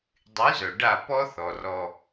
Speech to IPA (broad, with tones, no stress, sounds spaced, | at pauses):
dˤ y˨˦ z œ˨ ɖ a˦˨ p ɔ˦ θ ɔ˨ r ɔ˦